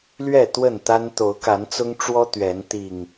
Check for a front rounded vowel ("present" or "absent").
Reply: absent